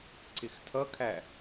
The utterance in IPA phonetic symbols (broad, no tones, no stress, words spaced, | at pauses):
ǀɪxtʰʌkʰæ